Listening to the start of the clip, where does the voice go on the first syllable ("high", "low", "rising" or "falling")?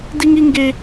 high